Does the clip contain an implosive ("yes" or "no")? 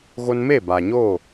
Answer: no